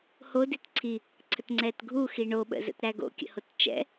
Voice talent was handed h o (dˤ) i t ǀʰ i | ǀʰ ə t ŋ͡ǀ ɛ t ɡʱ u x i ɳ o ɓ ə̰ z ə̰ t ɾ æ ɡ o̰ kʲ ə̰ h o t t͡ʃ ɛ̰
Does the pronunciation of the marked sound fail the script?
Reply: yes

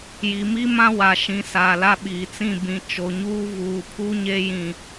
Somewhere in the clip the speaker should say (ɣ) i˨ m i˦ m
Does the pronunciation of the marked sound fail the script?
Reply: yes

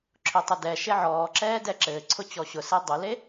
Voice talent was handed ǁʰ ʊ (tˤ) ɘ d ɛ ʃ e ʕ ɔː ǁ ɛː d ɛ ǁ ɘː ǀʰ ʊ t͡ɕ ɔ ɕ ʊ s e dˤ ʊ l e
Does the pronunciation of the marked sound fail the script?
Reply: no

